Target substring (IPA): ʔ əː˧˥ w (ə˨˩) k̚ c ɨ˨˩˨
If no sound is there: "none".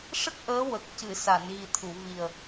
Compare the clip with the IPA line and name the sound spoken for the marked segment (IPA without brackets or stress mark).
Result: ə˨˩